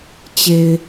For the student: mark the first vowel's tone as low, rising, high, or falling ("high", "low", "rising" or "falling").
low